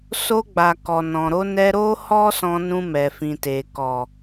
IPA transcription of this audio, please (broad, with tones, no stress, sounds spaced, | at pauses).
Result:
s o˧ ɡ͡b a˨ k ɔ˨ n ɔ̃˨ ɾ o˧ n ɛ˧ ɾ o˦ h ɔ˦ s ɔ̃˧ n ũ˧ m ɛ˨ f ĩ˨ t e˨ k ɔ˨